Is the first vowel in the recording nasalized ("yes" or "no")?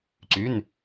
no